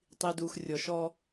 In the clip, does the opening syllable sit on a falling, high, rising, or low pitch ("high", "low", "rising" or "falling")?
low